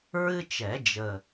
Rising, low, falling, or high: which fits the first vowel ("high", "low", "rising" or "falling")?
high